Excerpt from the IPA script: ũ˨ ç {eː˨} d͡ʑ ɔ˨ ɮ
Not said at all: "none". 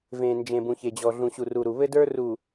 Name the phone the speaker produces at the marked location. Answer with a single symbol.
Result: e˨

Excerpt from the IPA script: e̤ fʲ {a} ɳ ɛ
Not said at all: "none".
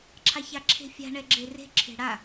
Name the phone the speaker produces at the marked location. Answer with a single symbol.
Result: a̤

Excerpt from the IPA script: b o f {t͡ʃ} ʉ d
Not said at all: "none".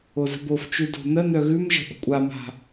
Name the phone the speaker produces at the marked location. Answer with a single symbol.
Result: t͡ʃ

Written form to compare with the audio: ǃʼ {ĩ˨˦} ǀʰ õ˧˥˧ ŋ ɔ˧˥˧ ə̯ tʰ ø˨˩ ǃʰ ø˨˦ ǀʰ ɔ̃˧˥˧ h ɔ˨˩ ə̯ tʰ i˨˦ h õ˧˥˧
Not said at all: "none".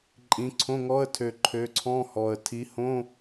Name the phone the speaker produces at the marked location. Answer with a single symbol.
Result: ĩ˨˦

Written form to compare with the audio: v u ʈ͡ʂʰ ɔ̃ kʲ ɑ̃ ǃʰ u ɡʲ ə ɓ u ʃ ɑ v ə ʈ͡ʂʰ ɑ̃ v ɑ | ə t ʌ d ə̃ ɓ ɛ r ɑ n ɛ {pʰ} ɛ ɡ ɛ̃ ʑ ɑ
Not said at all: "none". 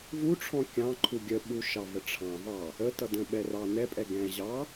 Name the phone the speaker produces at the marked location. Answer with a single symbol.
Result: pʼ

